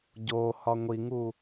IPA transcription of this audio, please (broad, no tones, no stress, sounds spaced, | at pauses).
ɟ o h ɒ ŋʷ i ŋ u